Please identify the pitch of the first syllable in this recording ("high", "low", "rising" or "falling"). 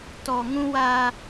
low